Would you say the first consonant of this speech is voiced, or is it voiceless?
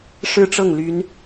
voiceless